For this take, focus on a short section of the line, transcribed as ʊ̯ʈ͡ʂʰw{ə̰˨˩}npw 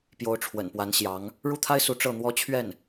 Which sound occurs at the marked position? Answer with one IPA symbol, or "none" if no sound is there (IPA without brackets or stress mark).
ə̰˨˩